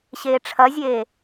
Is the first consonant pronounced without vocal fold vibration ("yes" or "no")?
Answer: yes